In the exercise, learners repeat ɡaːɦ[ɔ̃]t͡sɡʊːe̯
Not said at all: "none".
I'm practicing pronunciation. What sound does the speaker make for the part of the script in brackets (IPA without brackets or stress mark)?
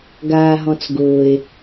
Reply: ɔ̃